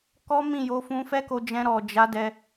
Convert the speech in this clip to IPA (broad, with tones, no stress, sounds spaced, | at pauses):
k ɔ˦ m ĩ˦˨ j o˧ f ũ˧ f ɛ˦ k o˧ d͡ʒ ɛ̃˧ ɾ ɔ˨ d͡ʒ a˨˦ d ɛ˧